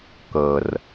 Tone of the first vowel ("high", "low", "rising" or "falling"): low